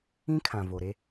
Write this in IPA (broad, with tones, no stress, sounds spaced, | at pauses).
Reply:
ĩ˦ kʰ ã˨ v o˨ ɾ e˦